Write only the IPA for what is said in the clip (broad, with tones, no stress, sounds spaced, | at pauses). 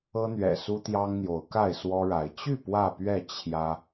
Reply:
ɤ˦ n̪ ɥ ɛ̰˨˩ s u˦ t̪ j ɑ˦ ŋ n̪ j o˨˦ ʊ̯ k a˥˨ ɪ̯ s w ɔ˦ ɻ a˨˦ ɪ̯ t͡ɕ y˥˨ p w ä˥˨ p ɥ ɛ˥˨ t͡ɕʰ j ä˦